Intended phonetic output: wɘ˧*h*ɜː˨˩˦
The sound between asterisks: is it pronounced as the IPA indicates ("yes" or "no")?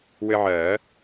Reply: no